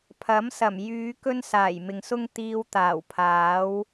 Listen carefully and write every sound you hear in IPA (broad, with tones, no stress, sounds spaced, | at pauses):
pʰ ɐ˨˥ m s ɐ˨˩ m j yː˨˧ k ɵ˥ n s aː˨˩ j m ɪ˨ ŋ s ʊ˥ ŋ t̪ iː˧ w t̪ aː˨˩ w pʰ aː˨˥ w